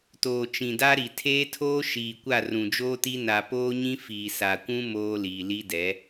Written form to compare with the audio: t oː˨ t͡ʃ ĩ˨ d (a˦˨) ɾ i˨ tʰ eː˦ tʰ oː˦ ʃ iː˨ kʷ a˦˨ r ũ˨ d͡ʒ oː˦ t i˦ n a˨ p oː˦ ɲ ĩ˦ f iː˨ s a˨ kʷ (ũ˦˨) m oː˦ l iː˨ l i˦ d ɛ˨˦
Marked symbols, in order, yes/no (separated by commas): no, no